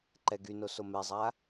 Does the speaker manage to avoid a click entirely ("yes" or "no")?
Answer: no